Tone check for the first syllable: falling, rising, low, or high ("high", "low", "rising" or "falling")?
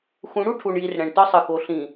rising